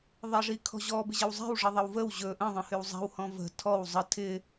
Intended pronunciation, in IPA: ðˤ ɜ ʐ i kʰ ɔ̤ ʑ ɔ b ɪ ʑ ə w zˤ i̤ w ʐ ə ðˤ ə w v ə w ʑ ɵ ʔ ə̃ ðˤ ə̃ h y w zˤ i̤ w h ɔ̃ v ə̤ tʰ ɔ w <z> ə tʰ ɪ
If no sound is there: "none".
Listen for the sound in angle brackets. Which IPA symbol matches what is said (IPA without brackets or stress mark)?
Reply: zˤ